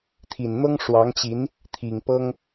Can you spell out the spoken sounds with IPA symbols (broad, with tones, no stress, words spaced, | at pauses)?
t̪ʰi˨˩nn̪ɤ˥ŋʂwɑ˧˥ŋt͡ɕi˧˥n | t̪ʰi˨˩ŋpɤ˥ŋ